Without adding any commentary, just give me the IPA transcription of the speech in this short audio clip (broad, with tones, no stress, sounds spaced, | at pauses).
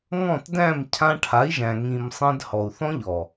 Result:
ŋ ɔ̃˦˨ t d æ̃˦˨ m cʰ ã˧ ʈʰ a˨˦ i̯ ʒ æ̃˨ ŋ ĩ˨ m sˤ ẽ˧ d h ɔ˨ u̯ θ ɔ̃˦ ʎ ɔ˨